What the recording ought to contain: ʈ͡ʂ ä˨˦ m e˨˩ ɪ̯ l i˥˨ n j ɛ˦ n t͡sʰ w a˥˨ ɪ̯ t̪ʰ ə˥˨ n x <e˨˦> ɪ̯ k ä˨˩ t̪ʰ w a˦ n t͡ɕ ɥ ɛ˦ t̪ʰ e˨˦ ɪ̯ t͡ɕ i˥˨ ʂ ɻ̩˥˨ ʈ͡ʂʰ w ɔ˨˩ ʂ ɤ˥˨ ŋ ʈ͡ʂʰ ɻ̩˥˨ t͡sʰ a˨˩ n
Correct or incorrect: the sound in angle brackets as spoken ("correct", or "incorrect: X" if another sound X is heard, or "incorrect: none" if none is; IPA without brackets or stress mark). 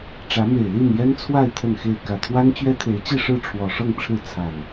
incorrect: e˥˨